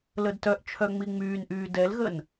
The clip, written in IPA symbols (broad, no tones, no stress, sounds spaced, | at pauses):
l ə d t œ ʔ t͡ʃʰ œ ŋ͡m i ŋ͡m yː n ʔ yː d ɛ l ɣ ə n